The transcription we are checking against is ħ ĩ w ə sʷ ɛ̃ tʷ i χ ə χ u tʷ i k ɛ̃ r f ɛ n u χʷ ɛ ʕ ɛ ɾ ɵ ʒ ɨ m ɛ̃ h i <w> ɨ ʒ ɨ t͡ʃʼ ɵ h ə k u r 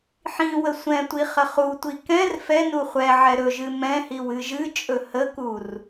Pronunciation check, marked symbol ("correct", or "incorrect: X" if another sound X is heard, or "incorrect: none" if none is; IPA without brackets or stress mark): correct